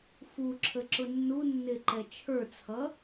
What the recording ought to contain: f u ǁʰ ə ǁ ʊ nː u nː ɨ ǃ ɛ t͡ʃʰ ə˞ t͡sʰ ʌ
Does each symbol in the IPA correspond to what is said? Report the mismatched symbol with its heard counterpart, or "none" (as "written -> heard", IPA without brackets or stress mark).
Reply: ɨ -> ɪ